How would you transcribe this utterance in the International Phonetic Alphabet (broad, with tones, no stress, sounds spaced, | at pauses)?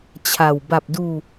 t͡ɕʰ a˨˩ w b a˨˩ p̚ d uː˧